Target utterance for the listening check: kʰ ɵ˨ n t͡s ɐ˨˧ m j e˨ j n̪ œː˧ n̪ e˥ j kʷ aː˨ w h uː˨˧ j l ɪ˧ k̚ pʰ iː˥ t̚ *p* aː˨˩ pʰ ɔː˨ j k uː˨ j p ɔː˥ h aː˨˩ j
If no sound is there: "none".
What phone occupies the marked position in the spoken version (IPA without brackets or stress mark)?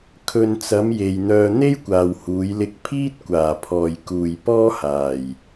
kʷ